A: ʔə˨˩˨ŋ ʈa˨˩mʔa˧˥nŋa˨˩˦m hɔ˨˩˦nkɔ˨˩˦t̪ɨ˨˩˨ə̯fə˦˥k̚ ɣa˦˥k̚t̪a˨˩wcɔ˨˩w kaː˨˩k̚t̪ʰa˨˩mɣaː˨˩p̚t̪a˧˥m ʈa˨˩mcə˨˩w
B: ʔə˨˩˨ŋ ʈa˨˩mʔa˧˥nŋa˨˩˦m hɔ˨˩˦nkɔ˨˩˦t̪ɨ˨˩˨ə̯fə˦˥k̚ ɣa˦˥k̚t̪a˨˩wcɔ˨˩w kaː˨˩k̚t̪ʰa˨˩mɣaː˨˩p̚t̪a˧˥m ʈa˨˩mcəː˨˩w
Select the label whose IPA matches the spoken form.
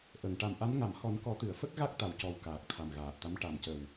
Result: A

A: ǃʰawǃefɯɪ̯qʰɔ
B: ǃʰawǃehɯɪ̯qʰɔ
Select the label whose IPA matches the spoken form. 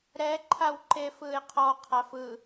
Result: A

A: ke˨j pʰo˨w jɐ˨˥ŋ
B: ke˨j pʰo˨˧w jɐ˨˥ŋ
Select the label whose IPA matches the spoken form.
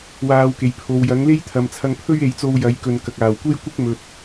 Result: A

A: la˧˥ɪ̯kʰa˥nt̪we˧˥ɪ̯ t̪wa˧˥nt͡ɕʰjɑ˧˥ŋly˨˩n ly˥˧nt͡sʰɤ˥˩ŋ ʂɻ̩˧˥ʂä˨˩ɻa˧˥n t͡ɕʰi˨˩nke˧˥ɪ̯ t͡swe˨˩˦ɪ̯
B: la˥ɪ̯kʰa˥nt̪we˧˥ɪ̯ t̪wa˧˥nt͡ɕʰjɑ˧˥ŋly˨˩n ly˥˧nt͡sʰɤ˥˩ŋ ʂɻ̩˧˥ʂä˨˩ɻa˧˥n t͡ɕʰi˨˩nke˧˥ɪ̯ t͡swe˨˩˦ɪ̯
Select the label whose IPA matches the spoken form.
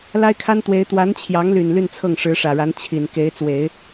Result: B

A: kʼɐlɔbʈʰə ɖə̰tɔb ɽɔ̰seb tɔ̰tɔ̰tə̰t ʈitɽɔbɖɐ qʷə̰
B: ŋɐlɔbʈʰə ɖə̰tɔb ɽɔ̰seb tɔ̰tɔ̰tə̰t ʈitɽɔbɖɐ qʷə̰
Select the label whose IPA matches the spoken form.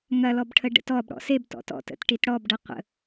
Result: B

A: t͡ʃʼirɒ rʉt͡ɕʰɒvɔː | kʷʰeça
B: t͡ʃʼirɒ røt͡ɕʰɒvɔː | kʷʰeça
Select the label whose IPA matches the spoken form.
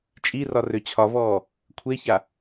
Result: B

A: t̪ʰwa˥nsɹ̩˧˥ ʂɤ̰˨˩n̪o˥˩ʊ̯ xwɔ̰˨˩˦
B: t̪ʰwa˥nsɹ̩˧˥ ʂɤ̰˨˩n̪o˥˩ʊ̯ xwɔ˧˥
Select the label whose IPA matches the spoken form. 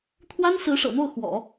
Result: A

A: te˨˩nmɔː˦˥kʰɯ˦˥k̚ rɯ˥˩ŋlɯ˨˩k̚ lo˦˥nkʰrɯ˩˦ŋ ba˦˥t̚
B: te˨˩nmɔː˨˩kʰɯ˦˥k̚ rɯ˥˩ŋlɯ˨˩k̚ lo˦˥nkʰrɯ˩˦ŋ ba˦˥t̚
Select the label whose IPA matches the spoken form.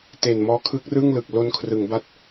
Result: A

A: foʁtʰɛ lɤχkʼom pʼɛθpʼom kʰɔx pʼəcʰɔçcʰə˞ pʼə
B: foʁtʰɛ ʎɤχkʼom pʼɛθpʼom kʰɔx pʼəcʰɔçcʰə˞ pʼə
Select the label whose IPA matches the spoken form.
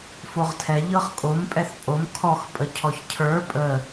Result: B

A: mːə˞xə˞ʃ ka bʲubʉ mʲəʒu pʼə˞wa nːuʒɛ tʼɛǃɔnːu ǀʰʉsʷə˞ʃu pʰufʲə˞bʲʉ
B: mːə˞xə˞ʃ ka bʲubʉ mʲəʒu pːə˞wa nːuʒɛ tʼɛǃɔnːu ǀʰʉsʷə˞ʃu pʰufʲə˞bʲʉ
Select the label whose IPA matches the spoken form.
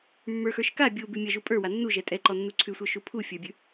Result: A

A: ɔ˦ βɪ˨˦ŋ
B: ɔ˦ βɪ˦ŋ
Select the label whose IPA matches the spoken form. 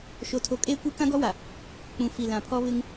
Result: B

